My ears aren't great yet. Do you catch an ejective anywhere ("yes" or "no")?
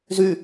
no